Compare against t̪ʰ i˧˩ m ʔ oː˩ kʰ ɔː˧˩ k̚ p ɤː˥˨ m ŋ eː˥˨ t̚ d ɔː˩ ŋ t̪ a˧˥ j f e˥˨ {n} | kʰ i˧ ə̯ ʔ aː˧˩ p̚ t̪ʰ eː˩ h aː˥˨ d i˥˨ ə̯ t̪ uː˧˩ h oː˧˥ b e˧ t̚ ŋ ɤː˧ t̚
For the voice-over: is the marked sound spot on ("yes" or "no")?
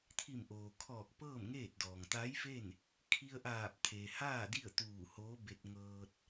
yes